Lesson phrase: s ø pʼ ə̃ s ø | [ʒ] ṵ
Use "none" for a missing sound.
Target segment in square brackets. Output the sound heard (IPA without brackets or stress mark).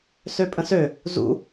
z